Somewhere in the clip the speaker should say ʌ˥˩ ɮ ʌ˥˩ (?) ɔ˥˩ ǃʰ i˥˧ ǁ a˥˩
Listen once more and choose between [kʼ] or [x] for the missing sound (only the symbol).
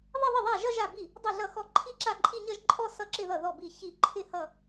x